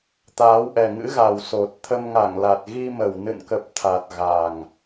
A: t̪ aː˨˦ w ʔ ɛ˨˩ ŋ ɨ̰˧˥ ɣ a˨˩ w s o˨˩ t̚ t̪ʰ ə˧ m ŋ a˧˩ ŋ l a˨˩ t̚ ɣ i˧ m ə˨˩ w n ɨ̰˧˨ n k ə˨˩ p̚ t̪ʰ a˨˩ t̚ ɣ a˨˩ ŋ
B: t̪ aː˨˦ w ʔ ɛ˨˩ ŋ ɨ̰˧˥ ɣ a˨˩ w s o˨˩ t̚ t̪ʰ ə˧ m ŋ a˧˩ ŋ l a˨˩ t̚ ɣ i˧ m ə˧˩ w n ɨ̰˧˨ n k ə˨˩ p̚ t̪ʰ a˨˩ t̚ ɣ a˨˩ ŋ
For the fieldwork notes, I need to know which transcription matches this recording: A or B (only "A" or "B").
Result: A